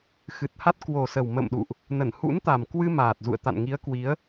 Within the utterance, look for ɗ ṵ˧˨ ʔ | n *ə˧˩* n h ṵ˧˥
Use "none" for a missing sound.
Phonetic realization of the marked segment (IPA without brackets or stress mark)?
ə˧˩